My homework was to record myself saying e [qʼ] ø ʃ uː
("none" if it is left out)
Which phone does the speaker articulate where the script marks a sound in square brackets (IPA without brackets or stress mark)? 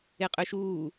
qʼ